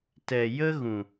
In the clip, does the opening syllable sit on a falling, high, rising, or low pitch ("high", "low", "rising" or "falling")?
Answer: low